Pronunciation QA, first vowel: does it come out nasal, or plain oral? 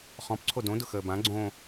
nasal